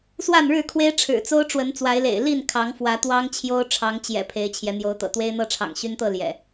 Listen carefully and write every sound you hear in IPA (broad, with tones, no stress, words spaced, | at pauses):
swa˥˨nɻɻ̩˥˨kʰwe˦ɪ̯ ʈ͡ʂʰɻ̩˨˩t͡so˦ʊ̯ ʈ͡ʂwə˨˦nt͡swa˨˦ɪ̯lḛ˨˩ɪ̯ li˥˨nkʰɑ˨˦ŋfwä˨˦ t̪wɑ˦ŋ t͡ɕʰjo˦ʊ̯ ʈ͡ʂʰɑ˨˦ŋt͡ɕjɛ̰˨˩ pʰe˨˦ɪ̯t͡ɕʰjɛ˨˦n̪jo˨˦ʊ̯ t̪ɤ̰˨˩t̪we˦ɪ̯n̪ɤ˥˨ ʈ͡ʂʰɑ̰˨˩ŋɕy˦nt̪ɤ˥˨ ljɛ̰˨˩